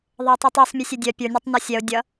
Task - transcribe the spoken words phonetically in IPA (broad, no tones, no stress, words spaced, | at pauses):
ðˤʌʊ̯tˤitˤœsˤ mʲɘsʲedʲœ pʲə˞ nʲœtˤnɔsʲɛʊ̯ dʲʌ